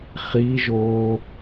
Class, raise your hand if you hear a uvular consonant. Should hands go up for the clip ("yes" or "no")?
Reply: yes